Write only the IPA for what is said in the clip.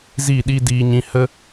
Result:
z i˦˨ ɗ i˦ d iː˧ ɲ ĩ˧ h ə˦

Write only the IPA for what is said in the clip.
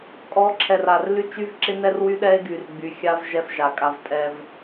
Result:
kʼ ɔ˨˦ ǁʰ ɛ˨ r a˨ r l y˦ t͡ʃ y˦ v ǁ ɪ˦ n ɛ˦ r w y˦ ɗ ɛ˦ e̯ ɡ y˨ r ɡ͡b y˨ xʲ a˦ v ʒ ɛ˦ f ʒ a˨ kʼ a˦ v tʼ ɛ˦ v

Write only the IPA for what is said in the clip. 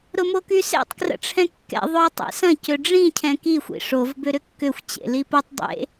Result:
ɾ ʊ m o k y s ḛ tˤ k r ə̰ ʈ͡ʂʰ ɛ̃ kː ɛ̰ ðˤ ʊ ɐ̯ tˤ ḛ s ɐ̃ c ø ɖ͡ʐ ĩ cʰ ɛ̃ k i xʷ ḭ ʂ o v b ʏ ɾ ʏ kː ʏ xʷ t͡ɕ ḛ l i p o tˤ dˤ ḛ

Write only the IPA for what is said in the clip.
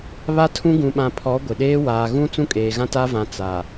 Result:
β a˦ tʰ ũ˦ ɡ ũ˨ ɓ ã˨ pʰ ɔ˨˦ ɡʷ ɪ˨ ɗ eː˦ w aː˨ ɣ ũ˦ t͡s ũ˦ kʼ eː˨ ɣ ã˦ t a˦ v ã˨ t͡s a˨

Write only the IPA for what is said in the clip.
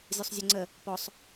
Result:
zʲ o sˤ zʲ o ŋ͡ǀ ə | p ɔ sˤ

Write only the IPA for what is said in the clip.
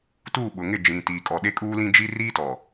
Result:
t uː˦˨ ɓ ʊ˨ ŋ ɪ˦˨ d͡ʒ ĩ˨ t iː˨ kʼ ɔ˨ ɗ e˦ kʼ uː˦ l ĩ˦ d͡ʒ i˦ r iː˦ t ɔ˨

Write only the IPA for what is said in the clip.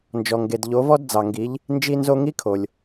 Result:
n d͡ʒ ɔ˩ ŋ ɡ e˩ d ʎ o˩˧ v ɔ˧ d d͡z ɑ˩ ŋ ɡ i˩˧ ʎ | n d͡ʒ i˧ n z o˧ ŋ i˧˥ kʰ o˩ lʲ

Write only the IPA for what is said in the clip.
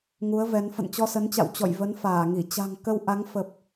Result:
ŋ u˨˦ ə̯ v ɛ˨˦ n f ə̰˧˨ n t͡ɕ ɔ˧ s ə˨˦ n t͡ɕ a̰˧˨ w t͡ɕ ɔ̰˧˨ j v ə˨˦ n f aː˧˩ ŋ i˧˩ t͡ɕ a̤˨˩ ŋ k ə˧ w ʔ a˨˦ ŋ f ə˨˩ p̚

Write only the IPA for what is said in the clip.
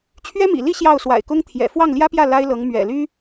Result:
t͡ɕʰ ɥ ɛ˥ m ḭ˨˩ l i˥˧ ɕ j ɑ˥˩ ʊ̯ s w a̰˨˩ ɪ̯ k ʊ˥ ŋ t̪ʰ j ɛ̰˨˩ f w ɑ˥˩ ŋ l j ä˥ p j ä˥˩ l a˥ ɪ̯ l ɤ˧˥ ŋ m ɥ ɛ̰˨˩ l y˥

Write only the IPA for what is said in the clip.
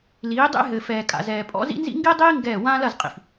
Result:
l iː˨˦ dˤ ḛ˦ ɦ ɘ˨ f ɛː˨ kʼ a̰˨ z ɛː˨ pʼ ɔ̰˦ z ḭ˦ n z ḭ˦ ŋ ɡ i˦ dˤ iː˦ ŋ ɡ ɛː˦˨ w ãː˦ l ɐ˦˨ z qʼ ḭ˨ f

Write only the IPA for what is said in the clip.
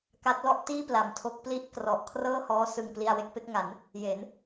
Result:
k a˦˥ t̚ l ɔ˥˩ ʔ t iː˥˩ p l a˩˦ m tʰ o˦˥ k̚ p l i˥˩ ʔ k r ɔ˨˩ ʔ kʰ r ɤː˥˩ h ɔː˦˥ s ɯ˨˩ ŋ p l i˧ a̯ w e˥˩ k̚ p e˦˥ k̚ ŋ a˩˦ n | j e˩˦ n

